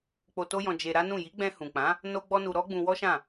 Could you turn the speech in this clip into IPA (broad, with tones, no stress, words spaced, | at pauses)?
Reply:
k͡po˧to˦jɔ̃˧ d͡ʒe˧ɾa˦nũ˦˨ ji˨˦ɡ͡bɛ̃˧hũ˨k͡pã˨˦ | no˧ ɡ͡bɔ˦nu˧ ɾɔ˦ɡ͡bũ˧wɔ˦ʃã˦˨